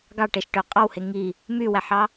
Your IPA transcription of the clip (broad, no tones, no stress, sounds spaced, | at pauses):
ɡ ɑ ʈ e ʃ ʈ ø qʼ ɑ w h e ŋ i | m y w æ ħ ɑ